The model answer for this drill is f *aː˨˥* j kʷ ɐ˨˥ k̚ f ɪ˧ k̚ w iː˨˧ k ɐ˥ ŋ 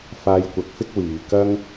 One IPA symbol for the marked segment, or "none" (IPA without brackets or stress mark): aː˧